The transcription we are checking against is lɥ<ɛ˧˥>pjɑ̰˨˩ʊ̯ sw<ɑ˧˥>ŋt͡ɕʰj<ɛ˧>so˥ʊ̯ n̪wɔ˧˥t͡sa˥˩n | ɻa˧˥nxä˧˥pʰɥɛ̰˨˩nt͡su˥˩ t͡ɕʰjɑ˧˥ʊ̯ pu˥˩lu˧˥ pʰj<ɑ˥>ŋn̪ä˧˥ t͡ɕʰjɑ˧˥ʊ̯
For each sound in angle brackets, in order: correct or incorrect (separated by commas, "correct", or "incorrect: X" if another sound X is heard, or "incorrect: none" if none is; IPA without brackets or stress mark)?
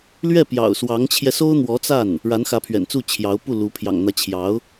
incorrect: ɛ˥˩, correct, correct, incorrect: ɑ̰˨˩